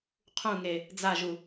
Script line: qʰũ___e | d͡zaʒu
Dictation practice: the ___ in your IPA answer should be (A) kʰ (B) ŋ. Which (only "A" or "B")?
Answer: B